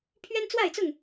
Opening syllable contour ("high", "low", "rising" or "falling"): high